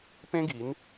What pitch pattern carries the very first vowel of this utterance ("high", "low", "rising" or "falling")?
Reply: high